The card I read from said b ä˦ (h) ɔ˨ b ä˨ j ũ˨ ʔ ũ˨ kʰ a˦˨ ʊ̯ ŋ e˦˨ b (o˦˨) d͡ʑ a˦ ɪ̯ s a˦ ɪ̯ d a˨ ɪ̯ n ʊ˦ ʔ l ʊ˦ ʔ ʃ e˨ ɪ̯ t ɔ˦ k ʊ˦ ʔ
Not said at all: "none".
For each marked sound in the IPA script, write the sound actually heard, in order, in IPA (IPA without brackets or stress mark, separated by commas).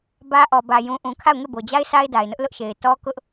ʔ, o˨